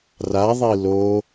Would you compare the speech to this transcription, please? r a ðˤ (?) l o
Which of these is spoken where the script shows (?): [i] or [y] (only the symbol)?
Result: i